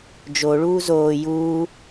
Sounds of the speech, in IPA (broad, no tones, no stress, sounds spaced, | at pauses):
d͡ʒ o ɭ uː z oː j uː